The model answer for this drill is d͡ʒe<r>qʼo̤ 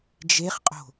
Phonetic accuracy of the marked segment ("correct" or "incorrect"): incorrect